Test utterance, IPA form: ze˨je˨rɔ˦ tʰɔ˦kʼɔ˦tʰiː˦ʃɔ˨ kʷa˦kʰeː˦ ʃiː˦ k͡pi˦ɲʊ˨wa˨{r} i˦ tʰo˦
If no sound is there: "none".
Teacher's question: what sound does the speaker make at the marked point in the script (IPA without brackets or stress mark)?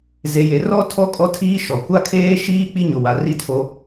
r